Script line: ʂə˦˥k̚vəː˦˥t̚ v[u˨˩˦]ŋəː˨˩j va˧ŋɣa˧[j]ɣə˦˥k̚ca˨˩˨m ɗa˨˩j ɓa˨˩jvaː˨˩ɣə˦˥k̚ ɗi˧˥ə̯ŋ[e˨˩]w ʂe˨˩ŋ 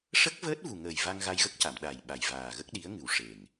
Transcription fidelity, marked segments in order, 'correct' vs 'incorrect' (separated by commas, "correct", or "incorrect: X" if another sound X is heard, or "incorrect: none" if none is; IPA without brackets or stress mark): incorrect: u˨˩, correct, incorrect: ɨ˨˩